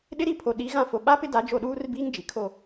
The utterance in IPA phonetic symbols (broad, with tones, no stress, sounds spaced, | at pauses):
ɗ ɪ˦ ɾ i˦ pʰ o˨ ɗ i˨˦ ɣ ã˦ f o˨ ɓ a˦ p ɪ˦ d a˨˦ d͡ʒ o˦˨ ɗ uː˦ r b iː˦ ŋ d͡ʒ i˨ kʰ o˦˨